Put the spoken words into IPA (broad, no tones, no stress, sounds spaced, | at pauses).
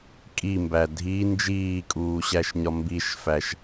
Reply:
kʼ i m b æ dʱ i n d͡ʒ iː kʼ uː ɕ æ ʃ ɲ ɒ m b i ʃ f æ ʃ